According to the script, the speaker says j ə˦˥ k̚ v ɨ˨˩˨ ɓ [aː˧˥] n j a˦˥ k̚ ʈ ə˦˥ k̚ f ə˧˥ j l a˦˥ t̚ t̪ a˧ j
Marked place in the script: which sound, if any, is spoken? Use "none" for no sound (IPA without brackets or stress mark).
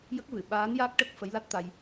aː˧˥